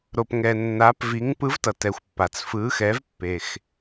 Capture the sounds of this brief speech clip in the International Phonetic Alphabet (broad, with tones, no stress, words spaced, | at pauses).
ɾo˩pŋɛ˩ nːa˩˥pvi˩˥ŋ pɯ˩˥vtʌ˩tɛ˩xʷ pːa˩t͡sfɯ˩˥xɛ˩˥v pːe˩x